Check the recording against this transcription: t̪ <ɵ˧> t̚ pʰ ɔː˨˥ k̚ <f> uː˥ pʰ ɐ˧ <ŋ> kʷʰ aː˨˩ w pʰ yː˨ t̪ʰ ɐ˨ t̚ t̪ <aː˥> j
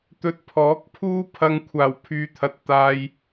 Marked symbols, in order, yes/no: yes, no, yes, no

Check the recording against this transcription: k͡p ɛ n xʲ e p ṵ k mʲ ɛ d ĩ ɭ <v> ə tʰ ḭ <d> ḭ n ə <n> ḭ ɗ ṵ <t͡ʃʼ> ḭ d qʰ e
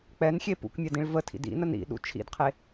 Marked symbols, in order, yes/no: yes, yes, yes, no

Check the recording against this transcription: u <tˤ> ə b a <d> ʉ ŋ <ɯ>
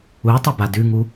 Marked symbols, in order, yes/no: yes, yes, no

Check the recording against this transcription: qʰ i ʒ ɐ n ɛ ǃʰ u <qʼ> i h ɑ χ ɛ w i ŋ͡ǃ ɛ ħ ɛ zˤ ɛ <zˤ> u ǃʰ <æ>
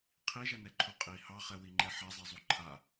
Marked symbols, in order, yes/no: yes, yes, no

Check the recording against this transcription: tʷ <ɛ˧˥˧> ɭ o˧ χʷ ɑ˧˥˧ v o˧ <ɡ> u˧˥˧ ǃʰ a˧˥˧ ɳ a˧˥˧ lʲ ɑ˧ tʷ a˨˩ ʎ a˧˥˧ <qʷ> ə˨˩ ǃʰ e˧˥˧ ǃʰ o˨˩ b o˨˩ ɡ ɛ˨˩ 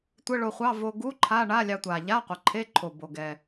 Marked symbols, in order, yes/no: no, yes, yes

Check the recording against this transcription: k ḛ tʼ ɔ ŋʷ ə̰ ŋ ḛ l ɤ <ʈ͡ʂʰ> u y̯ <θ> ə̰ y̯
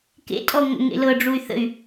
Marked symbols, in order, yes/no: no, yes

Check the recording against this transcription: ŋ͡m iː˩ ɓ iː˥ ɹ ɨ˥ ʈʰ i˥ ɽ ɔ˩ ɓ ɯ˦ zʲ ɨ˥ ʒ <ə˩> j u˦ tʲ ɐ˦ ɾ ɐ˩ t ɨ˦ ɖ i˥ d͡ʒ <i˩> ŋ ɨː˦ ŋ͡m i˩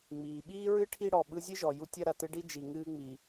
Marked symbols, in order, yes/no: no, yes

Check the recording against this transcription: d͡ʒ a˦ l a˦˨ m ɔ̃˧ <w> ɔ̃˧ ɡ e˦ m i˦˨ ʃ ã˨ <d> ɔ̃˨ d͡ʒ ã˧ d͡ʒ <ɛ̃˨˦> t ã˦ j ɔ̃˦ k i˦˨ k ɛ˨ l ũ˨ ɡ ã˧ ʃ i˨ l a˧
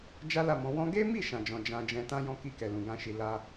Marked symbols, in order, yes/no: yes, no, no

